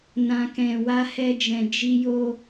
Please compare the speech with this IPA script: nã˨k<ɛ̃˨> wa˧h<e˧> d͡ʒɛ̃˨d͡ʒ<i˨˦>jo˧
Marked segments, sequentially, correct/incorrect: correct, incorrect, incorrect

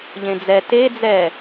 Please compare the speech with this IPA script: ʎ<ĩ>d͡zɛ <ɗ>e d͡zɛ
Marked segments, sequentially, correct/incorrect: incorrect, incorrect

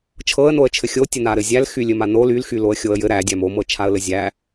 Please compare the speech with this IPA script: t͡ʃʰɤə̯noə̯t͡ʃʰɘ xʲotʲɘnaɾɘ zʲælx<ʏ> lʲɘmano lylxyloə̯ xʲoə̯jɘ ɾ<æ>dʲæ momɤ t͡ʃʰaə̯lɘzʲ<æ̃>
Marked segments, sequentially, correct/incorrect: incorrect, correct, incorrect

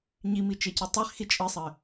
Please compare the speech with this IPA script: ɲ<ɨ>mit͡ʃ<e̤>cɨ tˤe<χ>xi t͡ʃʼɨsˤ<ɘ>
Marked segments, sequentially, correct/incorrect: incorrect, incorrect, correct, correct

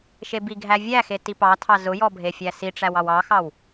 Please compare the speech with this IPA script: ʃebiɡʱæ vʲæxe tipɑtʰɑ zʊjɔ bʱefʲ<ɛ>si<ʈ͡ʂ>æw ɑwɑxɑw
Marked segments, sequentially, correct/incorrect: incorrect, correct

